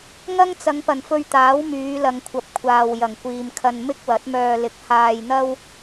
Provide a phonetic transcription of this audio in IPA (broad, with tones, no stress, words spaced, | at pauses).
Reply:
ŋɐ˥ŋt͡sɐ˨˧ŋpɐ˨˩n fɵ˧ɥt̪aː˨˥w myː˨˧lɐ˨ŋkʷʰɐ˨p̚ kʷʰaː˨w jɐ˨˩ŋkʷiː˨mkʰɐ˧n mɪ˥k̚wɐ˨˥t̚mœː˧ lɪ˧k̚ haː˧jn̪ɐ˥w